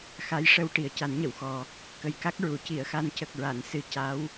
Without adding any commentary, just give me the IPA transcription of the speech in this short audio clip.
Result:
x a˧˥ j ʂ ə˧ w ʈ i˨˩ ə̯ c a˨˩˦ n ɲ ə˨˩˨ w x ɔ˨˩ | k ə˨˩ j k a˦˥ k̚ ɹ u˨˩˨ c i˨˩˨ ə̯ x a˧ n c ə˨˩ k̚ ɹ a˨˩˨ n s ɨ˧ c a˧˥ w

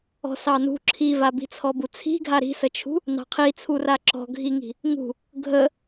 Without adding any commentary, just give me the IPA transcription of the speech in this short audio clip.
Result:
ɔ̤ s ɑ n ṳ ǁʰ i v a b i̤ t͡sʰ ɔ b u t͡sʰ i̤ ɡʱ a ɾ i̤ s ə t͡ʃʰ ṳ | n ɑ̤ qʰ i t͡sʰ u r a ǁ ɔ̤ ɡʱ i ŋ i̤ | ŋ ṳ | ɡʱ ə

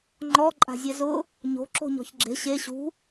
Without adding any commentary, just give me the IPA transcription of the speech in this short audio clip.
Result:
ŋ͡ǃ ɔ ǃʼ a̤ zʲ ɛ z ʊ | ɲ o̤ ǁ o̤ ɲ ɔ̤ ç ɡ͡ǁ e̤ ɕ e ɕ ṳ

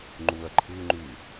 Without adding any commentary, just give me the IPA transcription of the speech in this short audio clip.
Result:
ŋ͡ǃ u ɐ̯ ǃʰ ɯ ŋ͡ǃ y

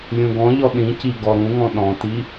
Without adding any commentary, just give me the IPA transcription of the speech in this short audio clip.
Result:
lʲ ũ ɡ ɔ̃ ʎ ɔ ɗ ĩ c i ɡ ɔ ɾ ũ ŋ ɔ̃ ɗ ɔ̃ t i

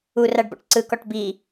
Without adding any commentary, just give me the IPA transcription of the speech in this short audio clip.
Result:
u r a ɖ b ɔ̰ ʈ ǀ ɯ k ɔ ʈ b i

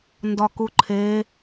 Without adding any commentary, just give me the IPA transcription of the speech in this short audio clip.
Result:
n d ɒ k u ǃʰ e

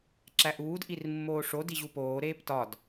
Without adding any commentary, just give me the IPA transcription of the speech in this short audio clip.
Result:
ǁ æ ʔ uː d ʔ i r mː oː ʂ o d i ʑ u p oː ɾ eː p t ɒ d

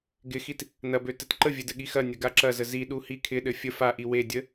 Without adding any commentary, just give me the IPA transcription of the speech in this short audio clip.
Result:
ɡ ɪ x i t | n ɐ b ø t ɘ t ǃ ə vʲ ɘ d ɘ ɠ i x ɐ nʲ ɐ ɡ a ǁ ɐ z ə z i ɗ u h i kʰ ɪ ɗ ɘ fʲ ə f a ʔ i w e dʲ ə

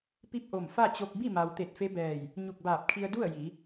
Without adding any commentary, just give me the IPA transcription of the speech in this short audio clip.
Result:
p i˥˨ p̚ ʔ o˧˩ m f a˥˨ t͡ɕ o˧ k̚ b i˥˨ m a˩ w t̪ e˧˩ t̚ f e˧˥ b ɛː˧˩ j | ɲ u˧˩ k̚ b aː˧˩ p̚ kʰ i˧ ə̯ d u˥˨ ə̯ j i˩˧

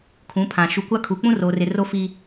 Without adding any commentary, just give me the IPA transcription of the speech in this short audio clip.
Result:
kʰ ũ˨˦ pʰ ã˨ ʃ u˨ kʷ a˦ kʰ u˨ k͡p ũ˦ r oː˨ r ɪ˨ r o˦ f iː˦

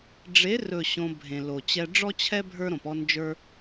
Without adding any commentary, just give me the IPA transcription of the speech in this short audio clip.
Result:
ɖ͡ʐ e˨˦ r ɵ˨ ɕ õ˧ bʱ ẽ˨ l o˨ t͡ɕ ɛ˦ ɖ͡ʐ ɔ˦ t͡ɕʰ ɛ˦ bʱ ə˞˦ ɾ õ˨ p ɔ˦ n d͡ʒ ə˞˦

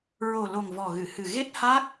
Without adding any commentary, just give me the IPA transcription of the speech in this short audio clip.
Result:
ɹ o˨˩ l o˨˩ ŋ v ɔ˨˩ ɣ ɨ˨˩˨ h ɨ˨˩ ɣ e˦˥ t̚ h a˦˥ k̚

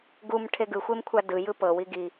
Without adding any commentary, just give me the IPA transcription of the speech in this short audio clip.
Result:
ɡ u m ʈʰ e ɡ ɯ xʷ e m kʷʰ a d ɯ j ɯ p ɤ w i ɡ i

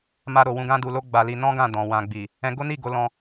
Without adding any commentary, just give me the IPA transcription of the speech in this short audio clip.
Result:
m a˧ ɾ o˨ w ũ˧ ɡ ã˦ d u˧ l o˦ ɡ͡b a˧ l i˧ n ɔ̃˦ ɡ ã˦˨ d ɔ̃˨ w ã˨ ɡ͡b i˨ | ɛ̃˧ ɡ o˦ n i˦˨ ɡ o˨˦ l ɔ̃˧

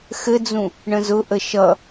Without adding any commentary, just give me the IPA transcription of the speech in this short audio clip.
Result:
x ɘ d͡z ũ | ɳ ə̃ z ʊ ʔ ə ʃ ʌ

